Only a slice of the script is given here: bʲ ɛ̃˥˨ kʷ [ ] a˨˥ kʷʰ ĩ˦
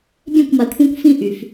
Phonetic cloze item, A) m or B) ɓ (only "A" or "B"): A